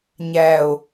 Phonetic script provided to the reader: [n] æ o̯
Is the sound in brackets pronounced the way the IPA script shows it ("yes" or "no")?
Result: no